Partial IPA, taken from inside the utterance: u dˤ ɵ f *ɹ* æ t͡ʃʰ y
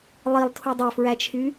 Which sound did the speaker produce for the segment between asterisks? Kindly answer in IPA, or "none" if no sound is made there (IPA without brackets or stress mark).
ɹ